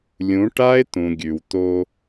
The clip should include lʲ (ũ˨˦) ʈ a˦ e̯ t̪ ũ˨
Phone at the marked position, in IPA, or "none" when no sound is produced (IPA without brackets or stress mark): ũ˨˦